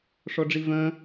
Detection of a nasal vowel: present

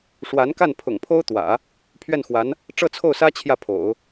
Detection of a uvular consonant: absent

